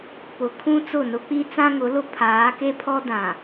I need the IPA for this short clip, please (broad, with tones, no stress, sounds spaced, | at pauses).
p ʊ˨ kʰ ũ˦ t͡s ʊ˦˨ n ʊ˦ k͡p i˦ t͡s ã˦ ŋ ʊ˨˦ l ʊ˦ pʰ aː˨˦ k e˦ pʰ ɔ˦ d ã˨